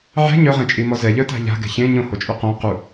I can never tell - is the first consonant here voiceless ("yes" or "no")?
no